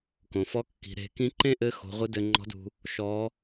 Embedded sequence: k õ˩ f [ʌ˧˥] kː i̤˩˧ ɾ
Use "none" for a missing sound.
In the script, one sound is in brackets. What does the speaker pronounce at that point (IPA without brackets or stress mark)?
ɔ˧˥